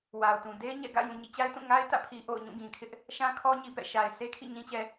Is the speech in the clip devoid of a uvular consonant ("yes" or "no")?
yes